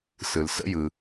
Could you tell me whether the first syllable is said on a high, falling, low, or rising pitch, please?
low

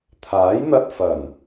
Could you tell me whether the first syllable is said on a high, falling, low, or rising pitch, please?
rising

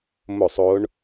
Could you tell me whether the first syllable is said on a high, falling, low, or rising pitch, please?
falling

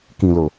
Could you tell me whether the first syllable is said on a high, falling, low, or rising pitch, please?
low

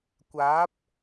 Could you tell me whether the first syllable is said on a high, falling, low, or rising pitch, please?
rising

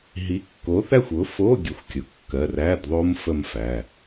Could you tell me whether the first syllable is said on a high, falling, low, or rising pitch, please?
rising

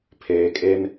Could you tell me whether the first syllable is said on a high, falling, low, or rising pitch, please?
low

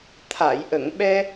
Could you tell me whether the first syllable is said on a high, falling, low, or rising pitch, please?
low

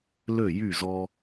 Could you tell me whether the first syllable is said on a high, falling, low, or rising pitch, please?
falling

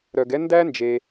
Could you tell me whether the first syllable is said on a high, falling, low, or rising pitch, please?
low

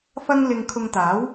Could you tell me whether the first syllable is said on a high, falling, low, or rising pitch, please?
high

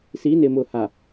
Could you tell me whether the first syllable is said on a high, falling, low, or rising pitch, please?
rising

